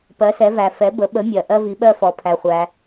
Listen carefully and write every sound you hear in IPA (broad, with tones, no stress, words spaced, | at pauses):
pɜ˩˧sɛ˩˧væ˩ fɛ˩˧bə˩˧ɓə˩˧mʲɜ˩ ʔɜ˧vi˩˧ɓɜ˧fɔ˩˧ pʰæ˩χʷæ˩